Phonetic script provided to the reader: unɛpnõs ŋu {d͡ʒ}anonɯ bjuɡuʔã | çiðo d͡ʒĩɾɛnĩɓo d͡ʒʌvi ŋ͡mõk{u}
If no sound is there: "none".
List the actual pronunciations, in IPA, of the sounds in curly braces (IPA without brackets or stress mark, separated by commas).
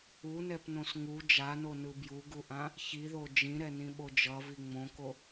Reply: d͡ʒ, o